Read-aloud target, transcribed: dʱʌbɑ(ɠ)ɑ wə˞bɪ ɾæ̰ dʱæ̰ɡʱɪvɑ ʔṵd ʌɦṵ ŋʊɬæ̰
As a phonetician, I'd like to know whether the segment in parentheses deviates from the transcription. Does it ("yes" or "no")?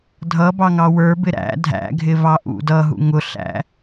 yes